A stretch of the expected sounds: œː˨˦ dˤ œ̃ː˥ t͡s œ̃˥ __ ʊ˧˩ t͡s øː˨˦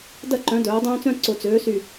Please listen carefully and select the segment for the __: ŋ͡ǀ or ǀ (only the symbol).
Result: ǀ